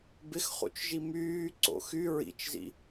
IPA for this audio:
b ɪ x χ ṵ t͡ʃ ʒ i m yː ǀ o̰ x y ɹ ḭ t͡ʃ z ḭ

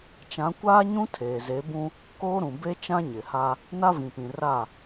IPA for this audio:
t͡ʃ ã˨˦ kʷ aː˦ ɲ ũ˦ tʰ eː˨ z e˨˦ b ũ˦ | k oː˦ ɾ ũ˨ b e˦ t͡ʃ ã˦ ɲ ɪ˨ h a˦ | n a˦ v ĩ˨ p ĩ˨ r a˦˨

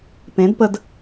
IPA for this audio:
p ẽ˨˦ d p ə˧ d

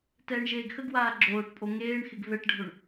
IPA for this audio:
t ɛː ɳ ʒ eː ɡ x ə ɡ w aː ɡ͡ǁ oː ʈ pʼ o ŋ eː ɳ x ɪ ɡ v ɛ ʈ ɖʱ o ɳ

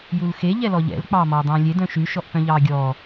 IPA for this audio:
j u l x e ʎ ɛ l ɔ ʎ ɛ̰ l k͡p ɑː m ɔː dˤ ɛ̃ː lʲ e d œ̃ ʃ ʉ ʃ ɔ ʔ p œ̃ ʎ ɑː ɡʲ ɔː

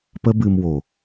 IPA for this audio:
p ə˦ b ɨ˧ m w o˨

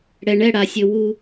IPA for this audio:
ɽ ɛ˩ ɳ ɛ˥˩ ɽ a˩ sʲ ɘ˩ w u˧˩˧

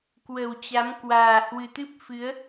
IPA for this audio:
k w ə˨˩ w t͡ɕ a˨˦ m k w aː˨˩ h w ɨ˨˩ t̪ ɨ˦˥ p̚ f ɨ˨˦ ə̯

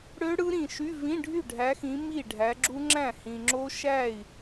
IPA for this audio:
ɽ ø˦˥ ɽ ɯ˦˥ ɾ ĩ˨ ʃ y˧˥˧ v ĩ˧˥˧ ɖʱ y˥˩ ɖʱ æ˨˦ x ĩ˨˦ m i˥˩ ɖʱ æ˨˦ ɡ͡ǁ u˦˥ ŋ͡ǁ æ̃˥˩ h ĩ˨ ŋ͡ǁ o˦˥ ʃ æ˥˩ i̯

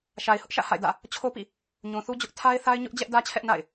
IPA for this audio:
ʃ a˨ ɪ̯ h ʊ˦ ʔ ʃ ä̰˦˨ h a̰˦˨ ɪ̯ d ä̰˦˨ | t͡ɕʰ o˦ p ḭ˦˨ | ɲ ũ˨ θ u˦ d͡ʑ ʊ˦ ʔ tʰ a˦ ɪ̯ θ a˦ ɪ̯ ɲ ʊ˦ ʔ d͡ʑ ɛ˦ ʔ d ä˦ t͡ɕʰ ɛ˦ ʔ n a̰˦˨ ɪ̯

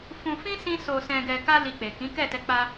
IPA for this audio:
f ũ˧ f ĩ˦ s ĩ˧ s o˨ s ɛ̃˨ ɡ ɛ˨ k a˧ l i˧ k͡p e˨ k ĩ˨˦ k ɛ˦˨ t ɛ˧ k͡p a˧

